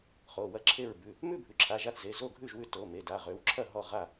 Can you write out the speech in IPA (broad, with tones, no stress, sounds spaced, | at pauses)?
χ o˩˧˩ w ɐ˥˨ ǁʰ e˥˨ ɹ b ʉ˩˧˩ | m ʉ˥˨ bʱ ʉ˩˧˩ ǁʰ a˩˧˩ ʒ a˥˨ θ z e˩˧˩ z o˥˨ ɡʱ ʉ˥˨ ʒ w ʉ˥˨ t o˩˧˩ m e˩˧˩ d a˩˧˩ ʁ ø˩˧˩ w ǁʰ ɐ˥˨ ɦ ɔ˥˨ ʁ a˥˨